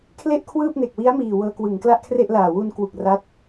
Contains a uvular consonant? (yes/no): no